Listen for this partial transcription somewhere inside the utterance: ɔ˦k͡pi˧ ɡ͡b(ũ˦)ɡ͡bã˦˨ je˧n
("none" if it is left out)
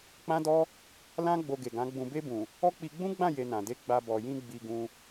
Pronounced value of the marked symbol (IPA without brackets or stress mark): ũ˦